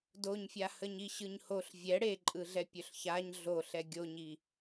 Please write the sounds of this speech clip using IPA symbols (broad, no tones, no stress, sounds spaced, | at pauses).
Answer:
d o ɲ fʲ a h ə ɲ i ɕ ɯ ɲ h o ɬ vʲ ɛ ɽ e ǃʼ ɯ ɮ ɛ pʲ ɵ ɬ ç a ɲ ɮ o ɬ ɛ ɡʲ o ɲ i